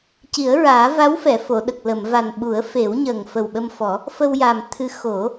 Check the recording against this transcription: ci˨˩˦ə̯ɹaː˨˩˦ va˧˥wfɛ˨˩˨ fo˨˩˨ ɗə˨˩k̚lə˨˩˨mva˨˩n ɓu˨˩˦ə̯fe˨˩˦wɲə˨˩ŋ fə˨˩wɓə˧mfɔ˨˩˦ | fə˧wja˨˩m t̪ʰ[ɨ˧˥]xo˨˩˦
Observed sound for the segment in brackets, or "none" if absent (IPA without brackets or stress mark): ɨ˧˥